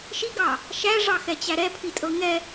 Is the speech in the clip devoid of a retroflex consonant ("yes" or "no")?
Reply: no